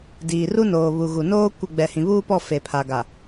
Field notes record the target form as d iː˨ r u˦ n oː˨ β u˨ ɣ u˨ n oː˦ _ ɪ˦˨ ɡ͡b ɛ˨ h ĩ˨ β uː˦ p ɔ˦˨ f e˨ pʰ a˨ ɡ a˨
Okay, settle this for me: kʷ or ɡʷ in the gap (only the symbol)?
kʷ